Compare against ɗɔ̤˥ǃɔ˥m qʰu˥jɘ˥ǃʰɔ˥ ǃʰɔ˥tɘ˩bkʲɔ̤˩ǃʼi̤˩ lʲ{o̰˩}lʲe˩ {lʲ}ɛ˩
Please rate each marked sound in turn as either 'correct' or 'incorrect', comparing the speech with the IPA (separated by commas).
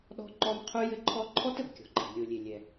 incorrect, correct